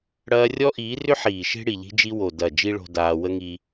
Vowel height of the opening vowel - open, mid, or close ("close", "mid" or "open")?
open